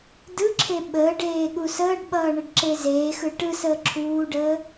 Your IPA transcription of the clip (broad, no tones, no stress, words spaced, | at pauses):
dɯǁʰe ɓəːɖeːɠu səːɖɓʌːɳəɖǁe zeːxɯ ʈɯsəː ǁʰuːɖəː